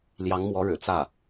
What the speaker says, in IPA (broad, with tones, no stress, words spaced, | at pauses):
ljɑ˧˥ŋmwɔ˧˥ɻɻ̩˨˩ t͡sä˥˩